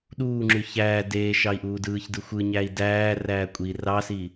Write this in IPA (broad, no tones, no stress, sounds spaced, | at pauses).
ɗ uː ŋ͡ǁ y ç æː d eː ʃ ɑ i̯ ʔ uː d ɯː ç d ɯ xʷ ɯ ɲ æː i̯ d æː r æː kʷʼ i r ɑ s i